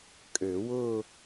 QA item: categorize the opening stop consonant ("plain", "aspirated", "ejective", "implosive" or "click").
ejective